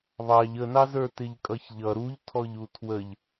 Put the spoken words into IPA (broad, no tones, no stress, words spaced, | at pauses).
βɑʎ ənɑzə˞ tɪʎkʼʌçʎʌ ɾuʎtʰɔʎu tʰwəʎ